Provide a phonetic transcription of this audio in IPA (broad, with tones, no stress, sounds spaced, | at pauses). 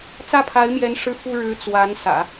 t͡s ä˥˩ pʰ a˧˥ ɪ̯ m j ɛ˧˥ n ʂ ɻ̩˥˩ f u˥ ɻ ɻ̩˧˥ t͡s w a˧˥ n s ä̰˨˩˦